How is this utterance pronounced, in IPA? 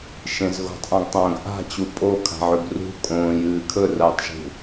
ʃ ẽ z ɣ o̤ tˤ ʔ ã ɡ tˤ ɐ̃ː ɡ ʔ a̤ t͡ɕ u pʼ o kʰ a̤ ʕ ʉ ɡ r ṳ kʼ õː j ɨː kʰ ɵ r ɐː tˤ ʒ ṳ

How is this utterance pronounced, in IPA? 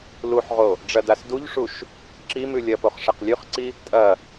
l u ħ ʁ o | ɖ͡ʐ ɐ d a s d u ʎ ʂ u ʃ | ǁ i m ʉ lʲ ɐ p o χ ʂ ɐ q lʲ ʉ χ ǀ i | tʼ ɐ

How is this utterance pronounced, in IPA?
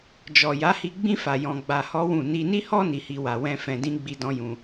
d͡ʒ ɔ˨ j a˨˦ h i˧ ɡ͡b ĩ˦ f a˧ j ɔ̃˧ ɡ͡b a˧ h ɔ˦ w ũ˦˨ n i˧ n i˦ h ɔ˦ n i˧ h i˦ w a˧ w ɛ̃˦ f ɛ̃˧ d ĩ˦ ɡ͡b i˦ d ɔ̃˦ j ũ˧

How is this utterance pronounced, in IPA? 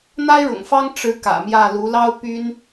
n̪ a˥ ɪ̯ ɻ ʊ̰˨˩ ŋ f ɑ˥ ŋ ʈ͡ʂ ɻ̩˧˥ k ä̰˨˩ m j ä˥˩ l u˧˥ l ɑ˥ ʊ̯ p y˥ n

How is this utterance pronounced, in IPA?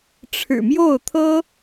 ʈ͡ʂʰ ɻ̩˨˩ m j o˥˩ ʊ̯ t̪ʰ ɤ˥

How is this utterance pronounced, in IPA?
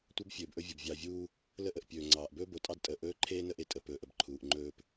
tʷ ɐ˦ b fʲ ɵː˨ b ʔ ɵ˦ vʲ o˨ b vʲ ɑ˨ vʲ uː˦ | l ə˦ ʔ ə˨ ʔ pʲ ɵː˨ ŋ͡ǀ ɑː˨ ʔ b ɵː˦ b o˨ tʼ ɑ˦ d tʼ əː˨ ʔ ɵː˦ ǃʰ eː˦ n ə˦ ʔ e˨ tʼ ə˨ p ɵː˨ ʔ ə˨ b ǃʰ uː˨ ʔ ŋ͡ǃ ɵː˦ p

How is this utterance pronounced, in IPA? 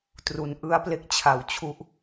t r u˦˥ n ʔ ɯ˦˥ a̯ p l e˦˥ k̚ t͡ɕʰ a˧ w t͡ɕʰ u˥˩ ʔ

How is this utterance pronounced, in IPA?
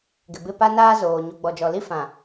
ɡ ɪ˨ b ɪ˦˨ p a˦ n aː˦ z oː˨ ɲ u˨ ɡ͡b ɔ˨ d͡ʒ ɔ˨ l i˦ f ã˨

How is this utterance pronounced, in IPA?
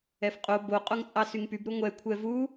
ɛ f qʼ o b o qʼ o ŋ t͡sʼ ɑ s y ŋ p y b ɾ u ŋʷ ɛ kʷʰ ɛ v u

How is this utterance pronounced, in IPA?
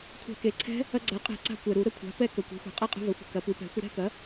kʷʰ a̤˧˩˧ k e˩ ǀʰ ɛ̤˦˥ | ɐ˧ ɡ͡ǀ a˩˥ qʼ ɛ̤˧˩˧ ǀ a̤˧ kʷ ɛ˩ ɾ u˧˩˧ ɾ ə˥˧ kʷʰ a̤˩˥ p ɛ˦˥ k ə˩ kʷ e̤˩˥ xʷ ɛ̤˩ qʼ ɐ˥˧ qʼ ə̤˧ v ɐ˩˥ xʷ ə̤˩ k ɐ˩˥ p u˩˥ p ɛ̤˩˥ xʷ ə˧ ɾ ɛ̤˥˧ k ɐ˩˥

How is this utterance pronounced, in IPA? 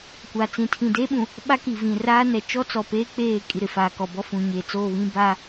kʷ a˨ t͡s ĩ˨ tʰ ĩ˨ d eː˦ ɓ ũ˨ | ɓ a˦ k i˨ v ĩ˨ r aː˦ n ɛ˨ t͡ʃ ɔ˦ t͡s ɔ˨ p eː˦ k͡p eː˦˨ kʼ i˨ ɾ ɪ˨ f aː˨ k ɔ˨ b ɔ˦ f ũ˨ ɲ eː˨ t͡s oː˦˨ β ĩ˦ b a˦

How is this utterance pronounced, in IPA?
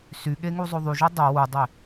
s y ɠ e ŋ u zˤ o ðˤ y ʒ o dˤ œ w u dˤ e

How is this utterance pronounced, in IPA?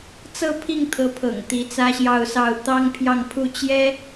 t͡s ɤ˥˧ pʰ i˥˩ ŋ t̪ʰ ɤ˧˥ pʰ ɤ̰˨˩ ŋ t̪ i˧˥ t͡s ä˥ ɕ j ɑ˥˧ ʊ̯ s ɑ˥˩ ʊ̯ t̪ ɑ˥ ŋ pʰ j ɑ˥˧ ŋ pʰ u˥˩ t͡ɕ j ɛ˥

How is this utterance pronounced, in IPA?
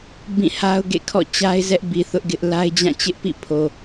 b ĩ˦˨ h a˦ ʊ̯ ɡ ḛ˦˨ kʰ ɔ̰˦˨ t͡ɕ a˦ ɪ̯ z ɛ˦ ʔ b i˨ θ ʊ˦ ʔ ɡ ɪ˦ ʔ l a˦ ɪ̯ d͡ʑ ã˦˨ t͡ɕ ɪ˦ ʔ p ḭ˦˨ pʰ o˨

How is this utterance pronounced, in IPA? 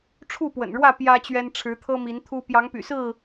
ʈ͡ʂʰ u˥˨ p w ə̰˨˩ n ɻ w ä˥˨ p j ä˦ t͡ɕ ɥ ɛ˦ n ʈ͡ʂʰ ɻ̩˨˦ t̪ʰ ɤ˦ m i˨˦ n t̪ʰ u˦ p j ɑ˨˦ ŋ p y̰˨˩ s ɹ̩˥˨

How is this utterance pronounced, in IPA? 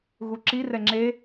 ɣ u ǁ i r ɛ ŋ͡ǁ e

